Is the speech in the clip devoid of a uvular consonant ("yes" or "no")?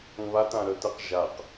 no